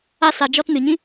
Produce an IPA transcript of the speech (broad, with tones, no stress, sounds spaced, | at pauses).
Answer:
a˧ s a˨ d͡ʒ ɔ˧ t n ɨ˨ ɲ ĩ˦